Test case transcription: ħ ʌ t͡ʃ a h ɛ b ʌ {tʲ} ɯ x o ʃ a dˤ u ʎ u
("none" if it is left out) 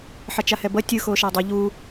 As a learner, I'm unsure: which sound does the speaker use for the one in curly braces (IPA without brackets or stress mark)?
tʲ